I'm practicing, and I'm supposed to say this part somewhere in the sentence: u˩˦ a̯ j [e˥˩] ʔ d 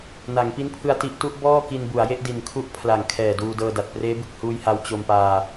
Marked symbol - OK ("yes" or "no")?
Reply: yes